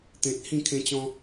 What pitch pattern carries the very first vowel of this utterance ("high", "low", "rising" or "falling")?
low